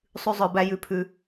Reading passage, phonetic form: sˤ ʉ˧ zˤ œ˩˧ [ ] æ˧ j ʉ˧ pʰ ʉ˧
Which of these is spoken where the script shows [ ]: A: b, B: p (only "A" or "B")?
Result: A